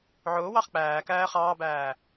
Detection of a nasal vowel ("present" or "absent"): absent